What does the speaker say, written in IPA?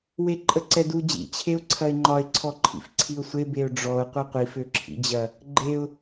w e ǃʼ ə ǀ ɛ d u d͡ʑ ḭ t͡ɕʰ e ʊ̯ ǀʰ ɐ ɪ̯ ŋ͡ǃ ɒ ɪ̯ ǀʰ ɔ ǃʰ ḭ f ǀʰ i ʊ̯ sʷ e b e ʊ̯ ɖ͡ʐ ɔ ʊ̯ qʷ ɛ qʷ i f ø ǁʰ ḭ d͡ʑ ɐ | ɡ͡ǃ e ʊ̯

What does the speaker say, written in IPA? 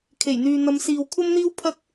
kʰ e˨˩ j n̪ yː˨ n̪ ɐ˨˧ m s iː˨ w kʷʰ ɐ˥ m n̪ iː˥ w pʰ ɐ˥ k̚

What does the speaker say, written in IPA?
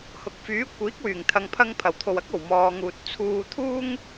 h ʊ˨ k̚ f yː˨˥ kʷ iː˨˥ k̚ w yː˨˩ ŋ t̪ʰ ɐ˨ ŋ pʰ ɐ˧ ŋ pʰ ɐ˨˩ w t̪ʰ o˨ w ɐ˥ k̚ o˨˩ w m ɔː˨ ŋ uː˨ t̚ t͡sʰ uː˧ t̪ʰ uː˥ ŋ

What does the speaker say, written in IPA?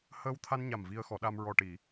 h əː˧ w t̪ʰ a˧ n ɲ a˨˩ m v i˧ ə̯ x ɔ˨˩˦ ɗ a˧ m ɹ ɔ˨˩ ʈ i˨˩˨

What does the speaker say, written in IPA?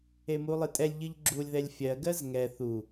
e m u lˠ ɨ tʼ ɛ lʲ ʎ ɨ ʎ ɡ͡ǁ u lʲ ð ɛ lʲ fʲ ɜ ɡ ɜ z ŋ ɛ θ u

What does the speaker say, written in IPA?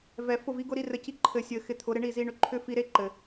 v ɛ˨ f ʊ˦˨ v i˦ ɡ ʊ˦ ɾ i˧ r ɘ˨ c i˧ ǃʰ ɘ˨ sʲ ɘ˨ x ɪ˧ t̪ʰ ʊ˨˦ ɾ ɪ˧ ɳ i˦˨ z i˧ ɳ ʏ˧ ǃʰ ʏ˦ f i˧ ɾ e˦ ǃ ɘ˨

